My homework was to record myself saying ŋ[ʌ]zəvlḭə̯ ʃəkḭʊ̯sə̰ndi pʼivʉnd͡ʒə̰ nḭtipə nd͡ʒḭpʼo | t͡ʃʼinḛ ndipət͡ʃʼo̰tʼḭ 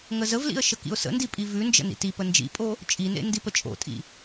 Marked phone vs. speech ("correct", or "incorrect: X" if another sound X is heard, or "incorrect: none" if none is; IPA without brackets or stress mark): incorrect: ə